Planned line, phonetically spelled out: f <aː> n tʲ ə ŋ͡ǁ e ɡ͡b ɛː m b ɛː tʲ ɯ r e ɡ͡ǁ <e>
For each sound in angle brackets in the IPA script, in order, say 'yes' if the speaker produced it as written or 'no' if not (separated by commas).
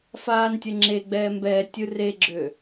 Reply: yes, no